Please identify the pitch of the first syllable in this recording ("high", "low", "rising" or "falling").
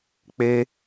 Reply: high